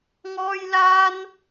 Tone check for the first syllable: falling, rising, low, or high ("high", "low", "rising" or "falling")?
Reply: high